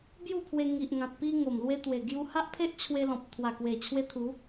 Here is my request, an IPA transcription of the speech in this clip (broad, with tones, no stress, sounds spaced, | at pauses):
b j u˥˧ pʰ w e˧ ŋ i˨ ʔ ŋ ã˨ t̚ p i˧ ŋ o˨˩ m l w e˧ t̪ w e˨˩ ɡ j u˧ h a˦ ʔ pʰ e˦ ʔ t͡ɕʰ w e˧ l ɔ̃˨ p̚ t̪ʰ w a˨˩ k w e˨˩ t͡ɕʰ w e˧ t̪ʰ u˨˦